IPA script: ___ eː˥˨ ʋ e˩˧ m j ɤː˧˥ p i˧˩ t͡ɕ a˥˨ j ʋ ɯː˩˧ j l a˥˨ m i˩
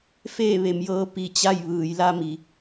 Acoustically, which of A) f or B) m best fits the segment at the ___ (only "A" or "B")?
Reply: A